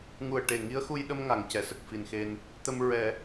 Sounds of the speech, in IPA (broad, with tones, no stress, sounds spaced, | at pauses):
ŋ u˨˩ ə̯ ʈ e˨˩ ŋ i˧˥ ə̯ x u˧ j ɗ ə˧ m ŋ a˨˩˨ ŋ c ɛ˨˩˨ s ə˨˩ k̚ f i˨˩ n x e˧ n | t̪ ə˧ m ɹ ɛ˨˩˦